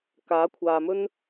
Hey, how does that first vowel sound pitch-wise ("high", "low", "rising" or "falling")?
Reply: rising